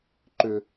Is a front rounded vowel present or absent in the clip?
present